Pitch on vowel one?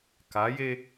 rising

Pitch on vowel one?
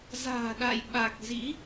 low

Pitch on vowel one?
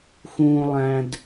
low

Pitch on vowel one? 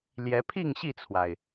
rising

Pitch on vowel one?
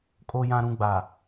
low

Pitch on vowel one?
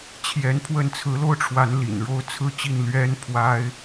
rising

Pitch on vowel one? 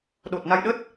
low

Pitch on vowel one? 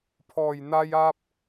low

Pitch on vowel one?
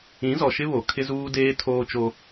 rising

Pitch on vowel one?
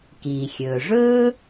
low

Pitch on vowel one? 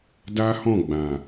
high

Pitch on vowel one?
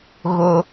high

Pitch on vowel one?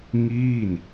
falling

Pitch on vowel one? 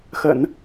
low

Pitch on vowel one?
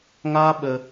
high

